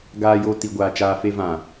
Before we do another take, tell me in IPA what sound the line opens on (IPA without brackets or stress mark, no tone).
ɡ